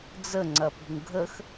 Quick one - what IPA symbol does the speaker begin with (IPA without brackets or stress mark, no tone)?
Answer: d͡z